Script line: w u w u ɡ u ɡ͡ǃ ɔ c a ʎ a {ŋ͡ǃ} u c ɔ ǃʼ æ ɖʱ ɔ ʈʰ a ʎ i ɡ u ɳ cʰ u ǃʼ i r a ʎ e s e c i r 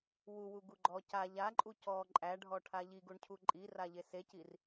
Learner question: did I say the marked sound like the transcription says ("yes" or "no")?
no